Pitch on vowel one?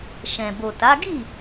low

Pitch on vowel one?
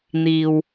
low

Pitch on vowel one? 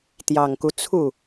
low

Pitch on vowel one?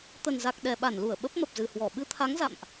low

